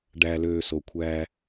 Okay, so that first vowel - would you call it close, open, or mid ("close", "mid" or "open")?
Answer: open